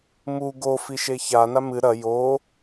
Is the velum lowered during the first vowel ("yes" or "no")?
no